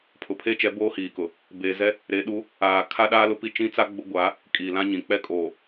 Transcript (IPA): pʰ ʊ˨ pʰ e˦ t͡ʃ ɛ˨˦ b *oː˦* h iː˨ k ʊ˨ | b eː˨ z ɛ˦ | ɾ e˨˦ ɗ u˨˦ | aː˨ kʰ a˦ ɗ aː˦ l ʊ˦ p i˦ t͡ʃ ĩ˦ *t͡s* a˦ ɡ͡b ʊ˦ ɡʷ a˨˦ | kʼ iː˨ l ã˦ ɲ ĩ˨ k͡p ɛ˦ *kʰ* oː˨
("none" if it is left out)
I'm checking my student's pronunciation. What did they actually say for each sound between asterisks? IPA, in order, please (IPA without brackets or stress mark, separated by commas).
oː˦, t͡s, kʼ